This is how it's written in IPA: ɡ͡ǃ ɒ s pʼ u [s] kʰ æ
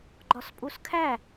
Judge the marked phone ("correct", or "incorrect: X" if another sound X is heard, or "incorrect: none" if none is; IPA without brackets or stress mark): correct